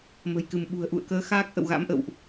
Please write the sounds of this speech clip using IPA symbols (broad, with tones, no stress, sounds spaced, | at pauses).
m ə̤˨˩ j k ɨ˧˩ m ɓ ṳ˨˩ ə̯ ʔ ṵ˧˨ ə̯ k əː˨˦ x aː˦˥ k̚ ʔ ə̰˧˨ w ɣ a̰˧˥ m ʔ ə̰˧˨ w ʔ